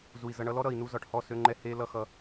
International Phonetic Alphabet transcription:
zu˨i̯zʌ˧ɳʌ˦ lɔ˦ɾʌ˨i̯nu˧ zɒ˨ʈhɔ˦˨ sø˧ŋ͡ǃɛ˧ he˦lʌ˧xʌ˧

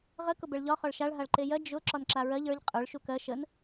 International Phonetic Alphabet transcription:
ʁə kʊbɛɭʎɒ χɒɭʃaɭ ɦaɭǃejɜ d͡ʒʊ ǁɒnǁaɹɜʎ ə˞ʎ qʼə˞ɭ ʃukɜ ʃən

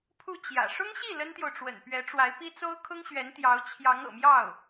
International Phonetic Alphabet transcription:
pʰu˥˩ t͡ɕjä̰˨˩ ʂʊ˥ŋɕi˥˩ lə˥nt̪jo˨ʊ̯ʈ͡ʂwə̰˨˩n pɥɛ˧˥ʈ͡ʂwa˧˥ɪ̯pi˥ t͡so˥ʊ̯kʰʊ˥ŋɕɥɛ˧˥nt̪jɑ˧˥ʊ̯ t͡ɕʰjɑ˧˥ŋɤ̰˨˩mjɑ˥˩ʊ̯

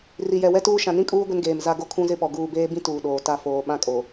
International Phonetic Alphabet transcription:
ri˨jɛ˨wɛ˦tuː˦ ʃã˨nĩ˦kʼuː˦ ɡʷɪ˦nɡeː˨mza˦ ɡo˦kʰũ˦zɪ˦pɔ˨ ɡuː˨beː˦bĩ˦ tuː˨ɗoː˨ ta˦foː˨ ɓã˦ kʼo˨

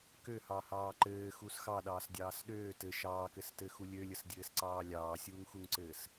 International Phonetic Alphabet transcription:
køhɑhɑː ǃɘːxus xɑɗɑːsdʲɑːs ɗøː tɘ ʃɑːkɘstɘxu lʲølʲəsdʲɘːsǀɑː lʲɑːsʲuːŋxuŋǀɘːs

